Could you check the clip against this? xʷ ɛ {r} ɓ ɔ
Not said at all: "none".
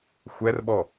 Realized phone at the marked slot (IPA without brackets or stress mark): r